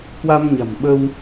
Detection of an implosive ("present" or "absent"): present